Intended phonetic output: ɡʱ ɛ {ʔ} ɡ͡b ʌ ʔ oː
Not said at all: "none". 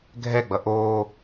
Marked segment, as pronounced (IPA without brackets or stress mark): none